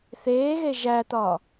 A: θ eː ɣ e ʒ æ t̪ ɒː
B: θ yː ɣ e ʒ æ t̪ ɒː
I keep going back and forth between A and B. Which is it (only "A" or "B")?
A